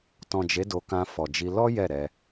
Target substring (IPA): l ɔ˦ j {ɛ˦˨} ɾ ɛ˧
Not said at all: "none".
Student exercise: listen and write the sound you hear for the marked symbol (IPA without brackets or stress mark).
ɛ˦˨